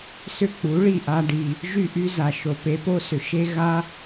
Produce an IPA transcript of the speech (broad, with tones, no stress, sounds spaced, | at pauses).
s ʏ˥ k͡p u˩˥ ɭ i˥˩ ʔ a˧ ɖ i˩ | ʒ y˥˩ ʔ y˥ z a˩ ʃ o˩ p e˩˥ p o˥ s ʏ˩ ʃ e˥ ɣ a˥